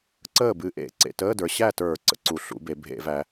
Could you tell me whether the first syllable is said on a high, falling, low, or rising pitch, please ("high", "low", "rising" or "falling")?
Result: falling